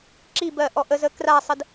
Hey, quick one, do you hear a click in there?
yes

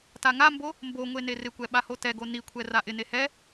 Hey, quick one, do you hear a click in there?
no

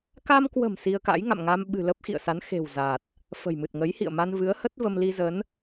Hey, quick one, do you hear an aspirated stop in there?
no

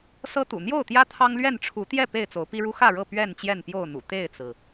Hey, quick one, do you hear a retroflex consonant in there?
yes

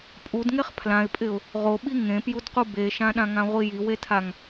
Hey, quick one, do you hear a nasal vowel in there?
yes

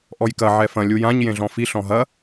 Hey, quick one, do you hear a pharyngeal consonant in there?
yes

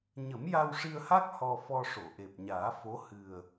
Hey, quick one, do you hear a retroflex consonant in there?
yes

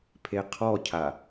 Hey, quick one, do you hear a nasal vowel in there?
no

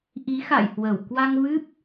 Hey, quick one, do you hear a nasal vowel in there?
no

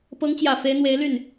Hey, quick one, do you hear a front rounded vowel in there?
yes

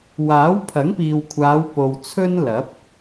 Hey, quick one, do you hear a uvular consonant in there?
no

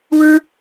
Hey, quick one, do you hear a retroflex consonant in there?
yes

